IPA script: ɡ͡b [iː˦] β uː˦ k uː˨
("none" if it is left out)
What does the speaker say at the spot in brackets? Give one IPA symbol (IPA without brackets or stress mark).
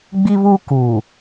i˦